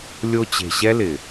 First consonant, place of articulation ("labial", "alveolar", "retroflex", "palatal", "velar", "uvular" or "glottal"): alveolar